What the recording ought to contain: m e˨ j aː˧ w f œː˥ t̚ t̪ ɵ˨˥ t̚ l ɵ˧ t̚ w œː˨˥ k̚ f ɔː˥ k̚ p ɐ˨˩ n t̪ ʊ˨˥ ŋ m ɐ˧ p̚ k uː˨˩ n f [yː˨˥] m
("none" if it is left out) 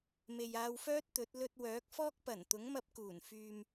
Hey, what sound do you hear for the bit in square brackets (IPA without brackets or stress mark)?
yː˨